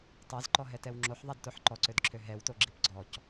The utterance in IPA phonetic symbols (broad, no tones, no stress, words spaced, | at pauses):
tˤazǃɔɦɛtɛw ŋ͡ǁoħðˤadtoħ ǃɔǀødǁʰø ɦɛwto ɡ͡ǁipɡ͡ǀɔc